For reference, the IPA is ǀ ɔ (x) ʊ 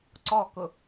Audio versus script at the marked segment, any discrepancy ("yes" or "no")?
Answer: yes